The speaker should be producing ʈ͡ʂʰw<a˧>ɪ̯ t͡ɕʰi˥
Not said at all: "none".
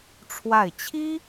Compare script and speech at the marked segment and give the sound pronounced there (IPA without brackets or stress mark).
a˥˩